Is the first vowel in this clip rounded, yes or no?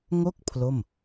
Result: yes